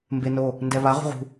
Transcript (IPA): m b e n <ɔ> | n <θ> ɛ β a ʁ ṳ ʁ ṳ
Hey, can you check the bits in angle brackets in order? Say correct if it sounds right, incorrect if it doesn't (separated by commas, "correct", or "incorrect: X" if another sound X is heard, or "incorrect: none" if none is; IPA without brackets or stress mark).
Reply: incorrect: o, incorrect: d